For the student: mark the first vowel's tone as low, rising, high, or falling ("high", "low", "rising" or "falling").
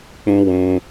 high